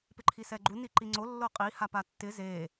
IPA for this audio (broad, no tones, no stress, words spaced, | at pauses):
pɪǃʰisɛɡ͡ǃu niǃiŋ͡ǀo lːoqʼi hapatːɪ ze